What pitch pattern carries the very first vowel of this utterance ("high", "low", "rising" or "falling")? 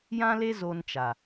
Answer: high